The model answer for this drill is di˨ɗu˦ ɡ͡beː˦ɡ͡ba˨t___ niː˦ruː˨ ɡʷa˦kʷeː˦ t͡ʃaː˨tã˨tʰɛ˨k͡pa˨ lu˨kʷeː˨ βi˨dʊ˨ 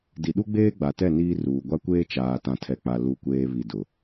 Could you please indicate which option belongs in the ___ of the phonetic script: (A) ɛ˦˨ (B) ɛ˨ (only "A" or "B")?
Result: A